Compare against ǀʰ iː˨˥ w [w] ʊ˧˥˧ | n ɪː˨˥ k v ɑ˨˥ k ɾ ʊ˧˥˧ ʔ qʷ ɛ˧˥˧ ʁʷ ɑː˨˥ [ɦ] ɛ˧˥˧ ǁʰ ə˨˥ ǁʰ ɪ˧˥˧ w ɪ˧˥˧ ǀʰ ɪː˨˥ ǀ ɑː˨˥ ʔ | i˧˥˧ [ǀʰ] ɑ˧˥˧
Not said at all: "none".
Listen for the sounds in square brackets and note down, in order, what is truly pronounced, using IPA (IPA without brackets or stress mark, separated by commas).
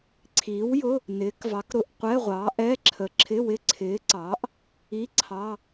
j, ʔ, ǀʰ